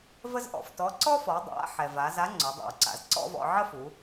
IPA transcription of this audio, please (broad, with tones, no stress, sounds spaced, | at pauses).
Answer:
v ə˥ z ʔ ɔ̰˩ f t ɔ˧˥ ǀ ɔ˥ f ɔ˩˧ dˤ a̰˧˥ ħ ɛ˩ v a˩˧ z a˧˥ ŋ͡ǀ o˩˧ dˤ a̰˩ w ǀ a̰˩˧ z ǀ ɔ̰˥ v ɔ̰˧ ʕ ə˥ f u˩˧